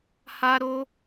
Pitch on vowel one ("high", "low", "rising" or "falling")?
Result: high